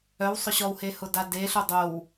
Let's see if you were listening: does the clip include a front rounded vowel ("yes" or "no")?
yes